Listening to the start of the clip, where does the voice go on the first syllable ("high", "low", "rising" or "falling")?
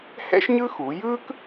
high